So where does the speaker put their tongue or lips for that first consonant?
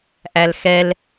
throat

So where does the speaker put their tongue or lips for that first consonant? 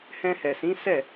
throat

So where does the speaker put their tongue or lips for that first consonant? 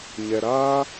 palate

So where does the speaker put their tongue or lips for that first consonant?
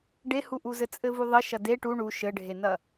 retroflex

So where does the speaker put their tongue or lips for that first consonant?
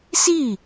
tongue tip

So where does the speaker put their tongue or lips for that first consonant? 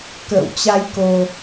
velum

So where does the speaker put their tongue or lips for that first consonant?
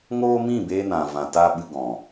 velum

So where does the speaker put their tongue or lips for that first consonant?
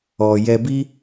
palate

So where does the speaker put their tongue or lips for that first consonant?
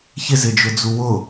palate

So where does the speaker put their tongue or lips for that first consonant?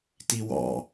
tongue tip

